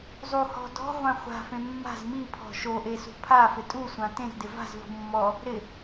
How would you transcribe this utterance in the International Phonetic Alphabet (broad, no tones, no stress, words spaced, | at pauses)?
zˤu hɔ̤ dɔ̤ʁʷã χʷa̤fẽ mːa̤z mipʰɔ̤ ʃoʔe sṳpʰafɪ tʼusʷã tẽzdɪ va̤zvṳ mːɔ | ɾɪ